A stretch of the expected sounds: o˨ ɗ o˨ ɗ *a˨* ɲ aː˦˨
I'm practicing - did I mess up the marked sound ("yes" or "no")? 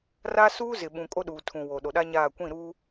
yes